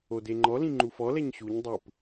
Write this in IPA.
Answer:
o d e ŋ͡ǃ ɔ l ĩ ŋ͡ǃ u f ɔ l ɛ ɲ ɕ u ɲ dˤ ɯ p

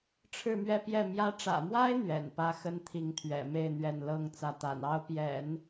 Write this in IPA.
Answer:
ʈ͡ʂʰ ɻ̩˥˧ m ɥ ɛ˥˧ p j ɛ˥˩ m j ä˧˥ ʈ͡ʂ ä̰˨˩ m w a˥ ɪ̯ n̪ ɥ ɛ̰˨˩ n p ä˥ x ə˥ n t̪ʰ i˧˥ ŋ t̪ʰ ɥ ɛ̰˨˩ m e˥˧ ɪ̯ n̪ ɥ ɛ˥˩ n l ɤ˥ ŋ t͡s ä˥˩ t̪ a̰˨˩ n ɑ˥ ʊ̯ p j ɛ̰˨˩˦ n

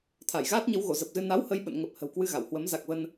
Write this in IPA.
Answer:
t̪ʰ a˧˩ j ɣ aː˦˥ t̚ ɲ ə˨˦ w ɣ o˧˩ z ə˨˩ p̚ z ɨ˧ n a˨˦ w h ə˧ j ɓ ə̰˧˨ n ŋ ə˨˩ p̚ h ə̤˨˩ w k w ɨ˧ ɣ a˧˩ w h w ə˨˦ m z a˨˩ k̚ v ə˧ n

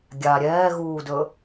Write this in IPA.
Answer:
ɡʲ a ɾʲ ɛː ɣ uː d ɵ

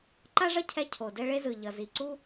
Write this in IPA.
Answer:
ǃ a˦ ʐ ʌ˦ cʰ ɛ˦ cʰ o˨ d ɛ˦ ɭ e˦ z ɯ˨ ʎ ʌ˨ z i˨ ǀ u˦

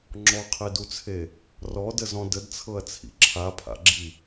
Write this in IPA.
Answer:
ŋ͡ǁ ɔ qʰ e d u t͡sʰ e | r ɔ d ə z ɔ̃ d ə d t͡sʰ ɤ ɐ̯ t͡sʰ ḭ ǁʰ a pʰ a̰ ɡ͡ǁ i

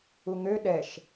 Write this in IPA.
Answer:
u ŋ ø ɗ ɛ ʃ

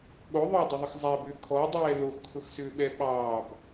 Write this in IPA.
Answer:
ɠ o ðˤ ʊː dˤ ʊ ðˤ ə x zˤ æ b ʏː kʰ ɔ dˤ ɛː l o x kʰ ʊ x s ʏː ɓ ɛ ɓ ɑː b

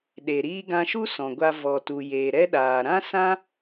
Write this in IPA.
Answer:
ɗ e˨ ɾ iː˧ ɡ ã˧ ʃ u˦ s ɔ̃˨ ɡʷ a˧ v ɔ˨ t u˨ j eː˨ ɾ ɛ˦ ɗ aː˨ ɾ ã˦ s ã˦

